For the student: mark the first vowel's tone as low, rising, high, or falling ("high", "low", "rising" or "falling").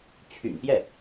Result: low